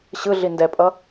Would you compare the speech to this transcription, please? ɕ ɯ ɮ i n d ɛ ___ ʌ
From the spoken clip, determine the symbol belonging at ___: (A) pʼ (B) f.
A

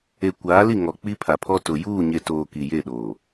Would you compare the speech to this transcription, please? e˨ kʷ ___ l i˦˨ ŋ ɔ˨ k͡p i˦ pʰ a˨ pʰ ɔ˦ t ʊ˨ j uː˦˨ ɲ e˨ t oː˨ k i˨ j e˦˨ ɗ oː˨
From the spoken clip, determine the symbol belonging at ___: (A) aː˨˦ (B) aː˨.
A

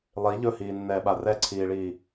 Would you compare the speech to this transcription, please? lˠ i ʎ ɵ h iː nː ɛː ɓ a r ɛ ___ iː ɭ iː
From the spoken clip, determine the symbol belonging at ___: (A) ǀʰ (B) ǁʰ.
A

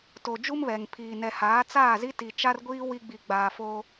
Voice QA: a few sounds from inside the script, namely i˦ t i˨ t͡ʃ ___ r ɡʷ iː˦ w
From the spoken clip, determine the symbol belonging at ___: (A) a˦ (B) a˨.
A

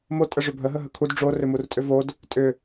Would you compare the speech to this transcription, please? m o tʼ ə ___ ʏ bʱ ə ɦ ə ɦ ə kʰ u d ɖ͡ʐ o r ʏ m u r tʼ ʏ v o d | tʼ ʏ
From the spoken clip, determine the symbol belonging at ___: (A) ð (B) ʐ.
B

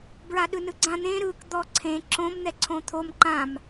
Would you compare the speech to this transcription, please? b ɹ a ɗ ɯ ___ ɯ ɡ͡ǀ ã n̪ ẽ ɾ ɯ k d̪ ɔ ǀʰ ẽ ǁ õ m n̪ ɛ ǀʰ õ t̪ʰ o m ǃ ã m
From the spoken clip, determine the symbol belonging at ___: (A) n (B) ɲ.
A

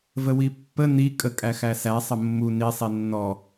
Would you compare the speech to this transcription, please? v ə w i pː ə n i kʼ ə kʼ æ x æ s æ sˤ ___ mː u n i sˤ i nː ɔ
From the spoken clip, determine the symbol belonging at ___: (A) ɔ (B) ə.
B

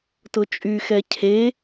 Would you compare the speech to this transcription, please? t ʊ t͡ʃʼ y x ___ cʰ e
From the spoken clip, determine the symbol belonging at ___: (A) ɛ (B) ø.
A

